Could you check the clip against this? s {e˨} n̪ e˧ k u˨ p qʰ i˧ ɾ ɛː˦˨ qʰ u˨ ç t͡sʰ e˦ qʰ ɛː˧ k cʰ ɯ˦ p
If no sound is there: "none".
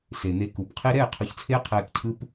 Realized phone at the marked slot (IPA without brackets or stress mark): e˨